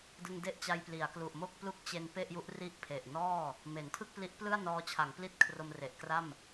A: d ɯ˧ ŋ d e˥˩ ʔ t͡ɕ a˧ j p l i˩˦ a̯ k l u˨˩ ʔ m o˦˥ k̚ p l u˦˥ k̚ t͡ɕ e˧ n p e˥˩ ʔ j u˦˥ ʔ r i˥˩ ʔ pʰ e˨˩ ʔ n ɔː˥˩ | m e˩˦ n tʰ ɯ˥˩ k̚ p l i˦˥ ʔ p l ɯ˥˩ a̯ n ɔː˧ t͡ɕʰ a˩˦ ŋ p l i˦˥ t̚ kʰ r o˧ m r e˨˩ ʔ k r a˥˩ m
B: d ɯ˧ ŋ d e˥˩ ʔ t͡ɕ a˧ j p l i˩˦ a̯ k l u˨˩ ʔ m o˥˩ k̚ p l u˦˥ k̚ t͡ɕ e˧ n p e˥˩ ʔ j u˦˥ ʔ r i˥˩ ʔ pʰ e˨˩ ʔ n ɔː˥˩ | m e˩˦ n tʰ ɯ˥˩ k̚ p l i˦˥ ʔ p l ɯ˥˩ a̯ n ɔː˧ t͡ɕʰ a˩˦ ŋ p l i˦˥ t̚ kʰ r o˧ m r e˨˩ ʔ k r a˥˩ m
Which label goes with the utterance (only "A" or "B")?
B